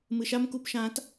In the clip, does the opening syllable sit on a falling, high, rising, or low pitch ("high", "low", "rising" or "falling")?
low